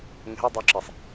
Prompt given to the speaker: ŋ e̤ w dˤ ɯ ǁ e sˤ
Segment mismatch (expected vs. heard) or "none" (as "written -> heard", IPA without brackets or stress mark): ɯ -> u